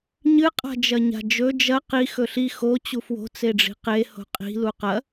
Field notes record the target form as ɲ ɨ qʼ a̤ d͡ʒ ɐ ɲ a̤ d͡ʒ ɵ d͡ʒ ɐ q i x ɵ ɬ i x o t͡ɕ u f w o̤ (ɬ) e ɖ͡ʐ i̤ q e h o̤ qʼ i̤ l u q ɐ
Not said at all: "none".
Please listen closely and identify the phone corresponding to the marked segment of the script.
t͡s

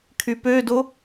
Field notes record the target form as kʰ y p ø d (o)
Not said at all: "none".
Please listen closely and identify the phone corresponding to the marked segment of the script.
o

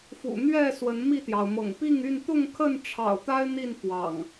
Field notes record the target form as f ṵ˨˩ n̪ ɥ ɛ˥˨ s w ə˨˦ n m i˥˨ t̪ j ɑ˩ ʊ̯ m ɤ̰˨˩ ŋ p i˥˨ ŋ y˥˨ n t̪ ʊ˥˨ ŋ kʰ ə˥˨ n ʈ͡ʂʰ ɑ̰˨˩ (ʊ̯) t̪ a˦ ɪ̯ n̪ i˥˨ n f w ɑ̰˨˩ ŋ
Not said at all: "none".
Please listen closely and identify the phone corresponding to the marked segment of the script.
ʊ̯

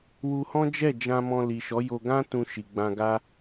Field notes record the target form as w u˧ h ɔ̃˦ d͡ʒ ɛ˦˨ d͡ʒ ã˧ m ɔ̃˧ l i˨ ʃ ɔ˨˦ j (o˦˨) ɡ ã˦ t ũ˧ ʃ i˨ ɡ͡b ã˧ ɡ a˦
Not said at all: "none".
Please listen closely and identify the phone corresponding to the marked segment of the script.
o˧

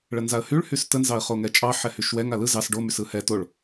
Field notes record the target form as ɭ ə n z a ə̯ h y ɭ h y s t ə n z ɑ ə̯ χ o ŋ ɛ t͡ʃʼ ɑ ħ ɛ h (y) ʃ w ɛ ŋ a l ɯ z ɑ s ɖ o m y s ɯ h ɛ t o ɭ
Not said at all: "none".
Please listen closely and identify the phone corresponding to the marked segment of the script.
y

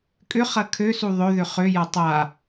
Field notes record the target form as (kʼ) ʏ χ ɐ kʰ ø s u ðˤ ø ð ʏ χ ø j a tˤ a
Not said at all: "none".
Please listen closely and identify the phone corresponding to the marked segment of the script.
kʼ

